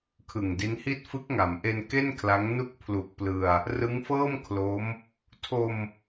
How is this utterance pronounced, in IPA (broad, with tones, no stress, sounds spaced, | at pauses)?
kʰ ɯ˨˩ ŋ d i˦˥ n h i˥˩ t̚ f ɯ˦˥ k̚ ŋ a˩˦ m ʔ e˧ n k e˥˩ n kʰ l a˦˥ ŋ n u˦˥ k̚ pʰ l u˨˩ k̚ p l ɯ˧ a̯ | r ɯ˦˥ ŋ f ɤː˥˩ m kʰ l o˦˥ m | tʰ o˧ m